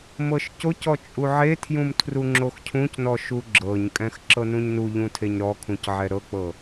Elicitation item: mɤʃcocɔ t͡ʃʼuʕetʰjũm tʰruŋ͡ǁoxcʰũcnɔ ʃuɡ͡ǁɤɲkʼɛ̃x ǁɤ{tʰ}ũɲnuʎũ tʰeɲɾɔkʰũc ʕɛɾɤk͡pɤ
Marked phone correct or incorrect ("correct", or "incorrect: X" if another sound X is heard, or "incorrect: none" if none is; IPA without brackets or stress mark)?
incorrect: n